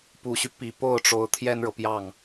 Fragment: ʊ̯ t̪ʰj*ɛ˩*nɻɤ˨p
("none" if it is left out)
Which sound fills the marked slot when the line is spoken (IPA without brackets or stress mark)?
ɛ˥